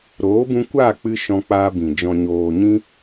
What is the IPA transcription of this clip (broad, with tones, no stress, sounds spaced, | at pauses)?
ɾ oː˨˦ b ũ˧ kʷ aː˦˨ k͡p ɨ˧ ʃ ɔ̃˧ k͡p aː˧ b ĩ˨ d͡ʒ ɔ̃˨ ɲ oː˨ ɲ ĩ˧